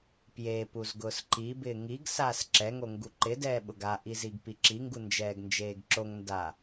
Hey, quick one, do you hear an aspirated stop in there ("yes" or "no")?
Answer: no